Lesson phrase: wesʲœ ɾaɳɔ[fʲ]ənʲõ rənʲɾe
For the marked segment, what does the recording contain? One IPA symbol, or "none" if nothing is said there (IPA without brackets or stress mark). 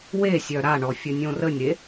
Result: fʲ